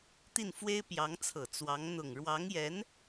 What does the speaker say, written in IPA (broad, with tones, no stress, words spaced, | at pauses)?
t̪i˥˩nfwe˥ɪ̯ pjɑ˧˥ŋt͡sʰɤ˨˩ t͡swɑ˧˥ŋ n̪ʊ˨˩ŋɻwɑ˧˥ŋjɛ˧˥n